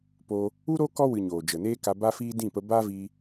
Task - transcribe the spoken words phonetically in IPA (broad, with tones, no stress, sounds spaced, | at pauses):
p oː˧ | u˦ ɾ o˦ k ɔ˦ w ɨ˨ ɲ oː˨ d͡ʒ ə˨ n eː˦ k a˧ b a˦ f iː˦ d ĩ˦˨ p ə˧ b aː˦ v iː˧